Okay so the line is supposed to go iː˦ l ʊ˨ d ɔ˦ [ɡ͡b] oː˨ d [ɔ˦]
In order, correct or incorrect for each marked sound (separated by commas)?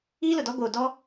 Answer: incorrect, correct